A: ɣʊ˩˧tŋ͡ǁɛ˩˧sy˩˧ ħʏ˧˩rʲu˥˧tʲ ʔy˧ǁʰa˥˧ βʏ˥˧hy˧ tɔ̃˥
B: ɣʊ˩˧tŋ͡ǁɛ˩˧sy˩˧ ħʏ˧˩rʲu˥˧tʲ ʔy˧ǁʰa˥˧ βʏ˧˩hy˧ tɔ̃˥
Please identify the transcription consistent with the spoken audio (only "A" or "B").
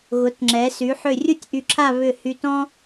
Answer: B